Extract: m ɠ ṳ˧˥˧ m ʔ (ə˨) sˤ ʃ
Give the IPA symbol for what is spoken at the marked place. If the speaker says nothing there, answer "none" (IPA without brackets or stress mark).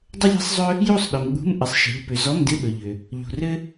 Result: ɪ˨